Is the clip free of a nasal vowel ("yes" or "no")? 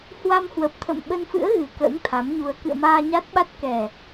yes